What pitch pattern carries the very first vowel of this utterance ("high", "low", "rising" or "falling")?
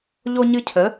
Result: high